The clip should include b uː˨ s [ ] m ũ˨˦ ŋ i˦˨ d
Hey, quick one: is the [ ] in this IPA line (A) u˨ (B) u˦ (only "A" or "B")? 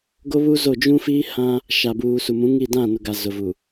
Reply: A